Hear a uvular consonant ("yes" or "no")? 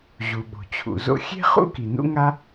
yes